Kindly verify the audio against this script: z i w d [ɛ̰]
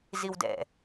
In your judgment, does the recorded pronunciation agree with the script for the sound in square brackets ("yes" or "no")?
yes